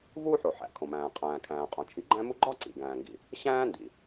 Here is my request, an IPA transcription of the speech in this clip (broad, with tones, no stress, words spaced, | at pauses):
vuː˥ħo˩ ħæ̰˩ kʰõ˩mæ̃ː˩ qʼæ̃ː˩kʰæ̃ː˩qʼõ˩ t͡ʃʰi˩ɡ͡ǃæ̃˥mu˥ ɡ͡ǃɒ˥ ǀḭ˩ɡæ̃ː˩ŋɡḭ˩ | ɕæ̃ː˥ndḭ˩